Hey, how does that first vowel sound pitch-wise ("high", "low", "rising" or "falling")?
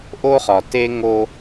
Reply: high